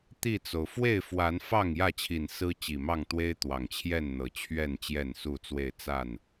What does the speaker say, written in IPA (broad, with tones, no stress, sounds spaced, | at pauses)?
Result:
t̪ i˥˨ t͡s o˩ ʊ̯ f w e˥˨ ɪ̯ f w a˨˦ n f ɑ˥˨ ŋ j ä˥˨ t͡ɕʰ i˨˩ n s ɹ̩˦ t͡ɕ i˨˩ m ɑ˥˨ ŋ t̪ w e˦ ɪ̯ t̪ w ɑ˨˩ ŋ t͡ɕʰ j ɛ˥˨ n n̪ ɤ˨˩ t͡ɕʰ ɥ ɛ˥˨ n t͡ɕ j ɛ˥˨ n s u˥˨ t͡s w e˥˨ ɪ̯ t͡s a˥˨ n